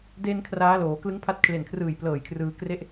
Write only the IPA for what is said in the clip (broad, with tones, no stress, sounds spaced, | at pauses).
d e˧ n kʰ r aː˦˥ l oː˩˦ k l ɯ˦˥ ŋ pʰ a˦˥ t̚ kʰ l e˨˩ n kʰ r ɯː˨˩ j p l ɤː˨˩ j kʰ r ɯː˧ k r e˦˥ ʔ